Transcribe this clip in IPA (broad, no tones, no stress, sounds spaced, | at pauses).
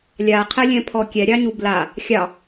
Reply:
lʲ a qʰ ɛ lʲ ɛ̃ pʰ ɔ kʲ ɛ ɾʲ ɑ ɲ u b l a | xʲ ɑ